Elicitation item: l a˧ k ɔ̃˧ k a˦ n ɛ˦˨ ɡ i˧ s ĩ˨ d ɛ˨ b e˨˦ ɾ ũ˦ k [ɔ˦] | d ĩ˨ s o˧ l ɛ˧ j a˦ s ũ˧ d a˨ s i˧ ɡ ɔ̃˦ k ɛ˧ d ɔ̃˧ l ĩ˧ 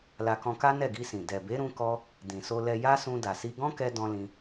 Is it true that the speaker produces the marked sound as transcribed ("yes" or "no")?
yes